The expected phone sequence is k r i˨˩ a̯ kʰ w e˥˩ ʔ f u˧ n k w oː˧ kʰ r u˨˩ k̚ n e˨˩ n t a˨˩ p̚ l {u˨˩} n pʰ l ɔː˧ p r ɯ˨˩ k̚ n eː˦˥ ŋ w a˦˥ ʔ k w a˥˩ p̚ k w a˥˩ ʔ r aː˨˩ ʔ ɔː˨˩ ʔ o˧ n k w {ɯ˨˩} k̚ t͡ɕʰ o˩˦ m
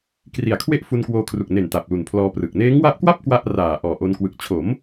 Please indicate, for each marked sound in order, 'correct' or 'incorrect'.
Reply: correct, correct

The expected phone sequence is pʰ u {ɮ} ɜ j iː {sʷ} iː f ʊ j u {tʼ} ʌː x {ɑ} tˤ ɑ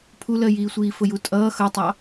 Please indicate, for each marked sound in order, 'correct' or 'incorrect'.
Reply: incorrect: l, correct, correct, incorrect: ʌ

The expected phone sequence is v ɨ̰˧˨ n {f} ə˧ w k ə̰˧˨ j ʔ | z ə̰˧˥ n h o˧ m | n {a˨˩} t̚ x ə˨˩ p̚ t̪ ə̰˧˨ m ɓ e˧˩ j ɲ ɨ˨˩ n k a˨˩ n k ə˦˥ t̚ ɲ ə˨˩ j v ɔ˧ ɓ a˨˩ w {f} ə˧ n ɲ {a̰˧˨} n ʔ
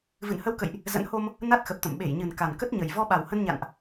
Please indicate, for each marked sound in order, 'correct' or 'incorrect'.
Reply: incorrect: h, incorrect: a˦˥, incorrect: h, correct

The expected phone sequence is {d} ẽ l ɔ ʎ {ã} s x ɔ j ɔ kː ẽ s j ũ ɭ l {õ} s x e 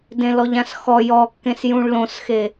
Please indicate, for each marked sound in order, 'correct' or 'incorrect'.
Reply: correct, correct, correct

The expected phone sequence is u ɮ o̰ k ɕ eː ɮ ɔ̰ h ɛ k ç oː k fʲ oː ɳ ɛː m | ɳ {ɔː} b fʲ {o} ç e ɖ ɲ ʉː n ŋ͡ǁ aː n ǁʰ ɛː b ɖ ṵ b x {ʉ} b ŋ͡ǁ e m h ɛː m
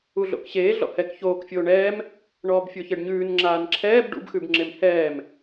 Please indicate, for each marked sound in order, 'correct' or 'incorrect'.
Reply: correct, correct, correct

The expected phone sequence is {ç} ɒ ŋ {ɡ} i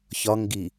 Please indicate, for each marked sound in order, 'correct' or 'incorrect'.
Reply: correct, correct

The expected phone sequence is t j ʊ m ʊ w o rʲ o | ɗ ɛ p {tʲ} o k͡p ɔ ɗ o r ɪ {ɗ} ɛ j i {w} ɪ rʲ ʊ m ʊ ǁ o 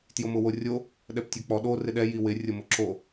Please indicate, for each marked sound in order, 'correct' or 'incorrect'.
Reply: correct, correct, correct

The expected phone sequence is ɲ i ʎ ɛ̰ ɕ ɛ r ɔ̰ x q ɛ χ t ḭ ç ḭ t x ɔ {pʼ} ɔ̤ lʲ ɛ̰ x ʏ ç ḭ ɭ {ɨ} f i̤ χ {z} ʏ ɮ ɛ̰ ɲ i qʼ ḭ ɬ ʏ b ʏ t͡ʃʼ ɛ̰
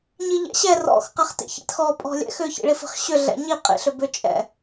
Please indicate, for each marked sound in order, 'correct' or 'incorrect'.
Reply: correct, incorrect: i, incorrect: ɕ

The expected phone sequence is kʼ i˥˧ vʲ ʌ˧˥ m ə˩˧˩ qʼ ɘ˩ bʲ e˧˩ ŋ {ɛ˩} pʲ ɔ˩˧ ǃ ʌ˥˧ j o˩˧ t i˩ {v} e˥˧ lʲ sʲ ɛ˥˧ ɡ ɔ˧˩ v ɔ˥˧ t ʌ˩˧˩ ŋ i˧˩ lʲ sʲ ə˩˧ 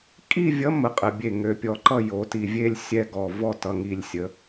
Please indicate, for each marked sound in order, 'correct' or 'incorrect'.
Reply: incorrect: ø˩, incorrect: vʲ

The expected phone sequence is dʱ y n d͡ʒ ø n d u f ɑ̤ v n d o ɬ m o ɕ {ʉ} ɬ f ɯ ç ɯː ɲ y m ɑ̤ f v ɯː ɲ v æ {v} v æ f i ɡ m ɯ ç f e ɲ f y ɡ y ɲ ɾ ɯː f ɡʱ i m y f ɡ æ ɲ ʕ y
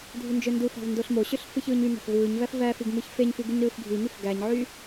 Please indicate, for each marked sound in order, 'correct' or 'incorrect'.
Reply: incorrect: ø, incorrect: f

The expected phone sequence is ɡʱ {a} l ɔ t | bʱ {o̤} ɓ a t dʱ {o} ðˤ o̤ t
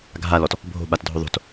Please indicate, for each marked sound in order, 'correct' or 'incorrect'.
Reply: correct, correct, correct

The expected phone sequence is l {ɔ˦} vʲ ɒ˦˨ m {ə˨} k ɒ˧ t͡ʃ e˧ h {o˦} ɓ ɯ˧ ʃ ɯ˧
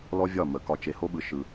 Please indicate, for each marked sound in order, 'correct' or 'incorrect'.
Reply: correct, incorrect: ə˨˦, correct

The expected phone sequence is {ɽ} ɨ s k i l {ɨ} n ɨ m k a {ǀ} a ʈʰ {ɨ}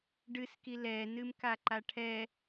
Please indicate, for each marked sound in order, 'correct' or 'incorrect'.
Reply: incorrect: ɖ, incorrect: ɛ, incorrect: ǃ, incorrect: ɛ

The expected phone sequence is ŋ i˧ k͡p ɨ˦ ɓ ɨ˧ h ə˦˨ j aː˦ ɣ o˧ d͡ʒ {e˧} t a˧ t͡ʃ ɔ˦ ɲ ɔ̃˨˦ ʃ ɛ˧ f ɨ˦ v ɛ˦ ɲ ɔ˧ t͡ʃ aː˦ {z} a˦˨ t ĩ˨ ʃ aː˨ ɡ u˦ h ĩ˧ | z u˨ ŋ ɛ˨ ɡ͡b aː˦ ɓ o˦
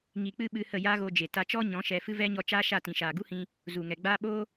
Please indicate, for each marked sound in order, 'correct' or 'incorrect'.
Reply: incorrect: e˨, incorrect: ʃ

